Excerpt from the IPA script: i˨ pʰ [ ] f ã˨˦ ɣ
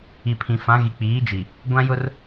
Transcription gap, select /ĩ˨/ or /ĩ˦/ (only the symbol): ĩ˨